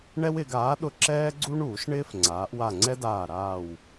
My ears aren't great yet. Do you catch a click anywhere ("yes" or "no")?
yes